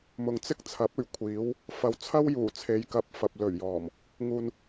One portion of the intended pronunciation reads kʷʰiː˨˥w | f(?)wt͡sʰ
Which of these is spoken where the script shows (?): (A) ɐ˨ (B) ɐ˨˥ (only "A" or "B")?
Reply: A